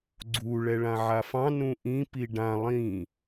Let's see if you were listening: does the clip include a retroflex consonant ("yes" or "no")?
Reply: yes